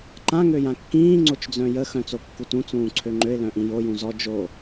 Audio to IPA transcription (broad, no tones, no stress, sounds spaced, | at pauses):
ǃ ã ŋ ø j ã kː ĩː ŋ͡ǀ o t͡ʃ d͡z œ̃ j ə x œ̃ t͡s o kː u t ũ t͡s ũː ǀʰ ø ŋ͡ǃ ø ɪ̯ l œ̃ ʔ ĩ j o j ũ z ɔ d͡ʒ o